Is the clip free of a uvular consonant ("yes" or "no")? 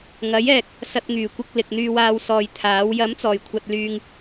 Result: yes